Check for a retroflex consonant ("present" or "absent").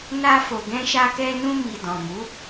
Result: absent